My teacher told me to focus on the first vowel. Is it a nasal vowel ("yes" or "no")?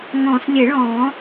yes